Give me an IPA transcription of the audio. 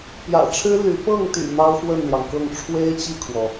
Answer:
p j ä̰˨˩ ʈ͡ʂʰ ɻ̩˥ l y˧˥ p ɤ˥˩ ŋ t̪ y̰˨˩ n̪ ɑ˥ ʊ̯ x w ə˥˩ n l j ɑ˩ ŋ k ɤ˥˩ ŋ ʈ͡ʂʰ w e˥ ɪ̯ t͡ɕ i˥˩ kʰ w ɔ˩

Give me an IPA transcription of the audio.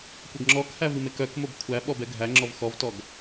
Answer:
kʷ ɜ ɡ ŋ͡ǁ ɔ k h æ v i m e k œ k m o b kʷʰ æ ɓ ɔ b ɛ ɡʱ æ ŋ͡ǁ ɔ v x ɔ v t ɔ ɡ

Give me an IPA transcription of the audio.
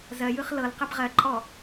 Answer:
z ɜ j ɯ χ l ɤ l q ɛ b ʁ ɜ ǃʼ ɔ

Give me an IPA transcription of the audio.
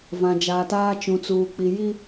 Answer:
v ã˨ d͡ʒ aː˨ t aː˦ t͡ʃ ũ˨ t͡s uː˨ k͡p i˨ j i˦

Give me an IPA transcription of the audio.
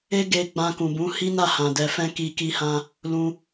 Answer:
e˦ ɡ e˧ ɡ͡b ã˧ k ũ˨ b ũ˨˦ h i˦ n a˦˨ h ã˨ d ɛ˧ f ɛ̃˦ k i˧ k i˧ h ã˧ | l ũ˧

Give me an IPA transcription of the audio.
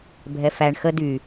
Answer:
bʱ ɛ f æ ɳ x ə d y

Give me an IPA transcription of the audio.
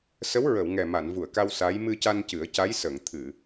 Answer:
s ə˧˥ w ɹ ə˨˩˨ w ŋ ɛ˨˩ m a˨˩˨ n v u˨˩˨ ə̯ k a˧ w s a˧˥ j m ɨ˧ c a˧ n c ɨ˨˩˦ ə̯ c a˧˥ j s ə˨˩˨ ŋ t̪ʰ ɨ˨˩˨

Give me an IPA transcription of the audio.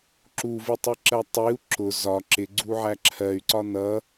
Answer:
ǁ u v i tˤ i ǁ ɜ tˤ i u̯ ǁ ʊ z ɒ ǁ ɪ ɡ͡ǀ u ʕ æ ǁʰ ɜ y̯ ǀ ɒ n ʌ

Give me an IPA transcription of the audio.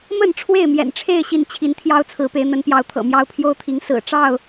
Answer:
m ə˥˨ n ʈ͡ʂʰ w e˥˨ ɪ̯ m j ɛ̰˨˩ n ʈ͡ʂʰ e˥˨ ɪ̯ ɕ i˥˨ n t͡ɕʰ i˨˦ n t̪ʰ j ɑ˦ ʊ̯ t͡sʰ ɹ̩˨˦ p e˨˦ ɪ̯ n̪ ə˨˦ n p j ɑ˨˦ ʊ̯ t̪ʰ ɤ̰˨˩ m j ɑ˦ ʊ̯ pʰ j o˦ ʊ̯ t̪ʰ i˨˦ ŋ s ɹ̩˨˩ ʈ͡ʂ ɑ˥˨ ʊ̯

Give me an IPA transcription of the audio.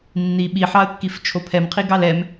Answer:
nː i ɓ i ħ ɑ ə̯ kː i f t͡ʃʰ o pʰ ɛ m qʰ i ɡ ɑ l ɛ m

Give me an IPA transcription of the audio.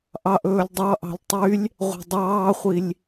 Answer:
ʔ ɑ ʔ ɵː lʲ dˤ ɑ ʔ ɑ̤ lʲ tˤ y lʲ | ʁʷ ɑ̤ dˤ ɑː χʷ i lʲ

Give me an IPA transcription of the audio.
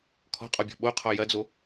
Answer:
kʰ ɔ̤ qʼ ɔ bʲ ɔ̤ ɓ o qʰ ɔ j ɐ d͡z o

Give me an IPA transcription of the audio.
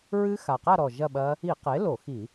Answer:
ɹ ɨ˦˥ x a˨˩ q a˥˧ ɾ ɔ˨˩ ʒ ɐ˥˧ ɓ ɐ˦˥ | i˧˩˧ q e˩˥ l o˧˩˧ x i˧˩˧

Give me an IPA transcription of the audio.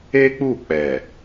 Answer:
e˦ k͡p u˦˨ k͡p ɛ˨

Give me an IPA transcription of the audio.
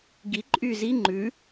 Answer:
ɡ i ǃʼ yː z i ŋ͡ǃ ʉ

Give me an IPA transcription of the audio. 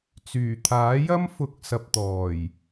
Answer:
t͡s yː˨˩ t̪ʰ aː˨˥ j ɐ˥ m f ʊ˨˥ k̚ s ɐ˨ p̚ t̪ ɔː˨˩ j

